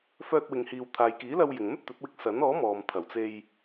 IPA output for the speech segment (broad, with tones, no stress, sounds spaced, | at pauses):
f œː˧ t̚ w ɪ˨ ŋ h iː˨ w t̪ʰ aː˨ j k iː˨˥ l ɐ˧ w j ɪ˨ ŋ m ɵ˥ t̚ t̪ ɵ˨˥ t̚ w ɪ˧ k̚ s ɐ˨˥ n ɔː˨˥ m ɔː˨ m t̪ʰ ɐ˨˩ w t͡s e˧ j